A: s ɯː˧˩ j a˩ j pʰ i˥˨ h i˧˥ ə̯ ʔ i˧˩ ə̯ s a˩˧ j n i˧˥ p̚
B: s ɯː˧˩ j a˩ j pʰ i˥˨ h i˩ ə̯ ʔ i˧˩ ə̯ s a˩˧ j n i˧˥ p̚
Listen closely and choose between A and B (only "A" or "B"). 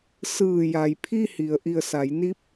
B